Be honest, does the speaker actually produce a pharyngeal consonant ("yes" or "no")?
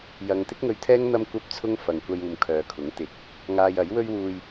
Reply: no